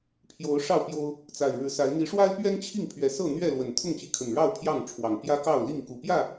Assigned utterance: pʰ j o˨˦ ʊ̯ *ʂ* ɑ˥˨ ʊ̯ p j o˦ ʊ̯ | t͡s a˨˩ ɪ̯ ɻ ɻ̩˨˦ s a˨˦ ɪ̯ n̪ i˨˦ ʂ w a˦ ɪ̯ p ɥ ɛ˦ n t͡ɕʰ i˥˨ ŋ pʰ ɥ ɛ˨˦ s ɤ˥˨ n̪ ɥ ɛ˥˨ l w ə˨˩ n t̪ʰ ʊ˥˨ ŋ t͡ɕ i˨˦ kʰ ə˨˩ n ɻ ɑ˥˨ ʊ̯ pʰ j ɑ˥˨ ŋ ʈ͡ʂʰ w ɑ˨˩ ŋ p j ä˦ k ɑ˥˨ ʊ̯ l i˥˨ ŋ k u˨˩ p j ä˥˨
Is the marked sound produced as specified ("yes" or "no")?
yes